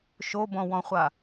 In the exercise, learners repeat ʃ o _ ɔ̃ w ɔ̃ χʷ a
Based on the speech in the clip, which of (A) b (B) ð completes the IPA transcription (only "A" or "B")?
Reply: A